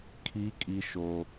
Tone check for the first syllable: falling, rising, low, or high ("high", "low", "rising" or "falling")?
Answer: high